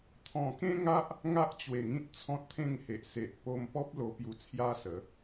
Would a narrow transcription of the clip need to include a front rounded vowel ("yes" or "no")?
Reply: no